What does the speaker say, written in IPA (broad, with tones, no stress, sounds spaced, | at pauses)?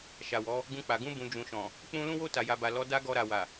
ʃ a˨ w ɔ˨˦ | ɡ ũ˧ k͡p a˨ ɡ ũ˧ b ũ˨ d͡ʒ ũ˨ ʃ ɔ̃˨ | k͡p ũ˦ l ũ˦ w o˦ t a˧ j a˧ b a˨ l ɔ˨˦ d a˧ ɡ ɔ˧ ɾ a˨ w a˨